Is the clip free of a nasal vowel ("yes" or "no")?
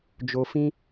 no